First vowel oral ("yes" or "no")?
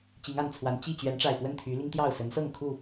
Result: yes